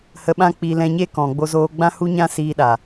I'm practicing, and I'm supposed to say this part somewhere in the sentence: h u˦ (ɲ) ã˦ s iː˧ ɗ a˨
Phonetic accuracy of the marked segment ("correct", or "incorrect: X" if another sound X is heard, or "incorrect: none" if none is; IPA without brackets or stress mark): correct